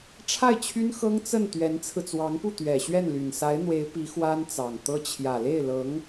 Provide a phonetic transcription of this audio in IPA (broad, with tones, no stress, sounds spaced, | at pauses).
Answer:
ʈ͡ʂʰ a˥˩ ɪ̯ t͡ɕʰ y˥ n x ɤ˥ ŋ t͡s ə˥˩ n t̪ ɥ ɛ˧˥ n t͡sʰ ɹ̩˧ t͡s w ɑ˧˥ ŋ p u˥˩ t̪ ɥ ɛ˨˩ ɕ ɥ ɛ˥˩ n l y˨˩ n s a˧˥ ɪ̯ n̪ w e˧˥ ɪ̯ p i˧˥ x w a˥ n t͡s ɑ˨˩ ŋ t̪ ɤ˥ t͡ɕʰ j ä˨˩ l e˥˩ ɪ̯ l ɤ˧˥ ŋ